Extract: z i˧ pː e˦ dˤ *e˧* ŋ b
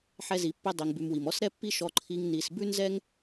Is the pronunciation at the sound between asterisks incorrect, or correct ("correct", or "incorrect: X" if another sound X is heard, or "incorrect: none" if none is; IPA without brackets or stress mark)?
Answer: incorrect: i˧